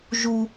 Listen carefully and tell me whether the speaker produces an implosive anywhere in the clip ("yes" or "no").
no